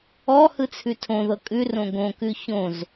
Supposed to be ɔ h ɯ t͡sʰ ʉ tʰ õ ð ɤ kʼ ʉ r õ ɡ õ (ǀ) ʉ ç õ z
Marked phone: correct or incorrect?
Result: incorrect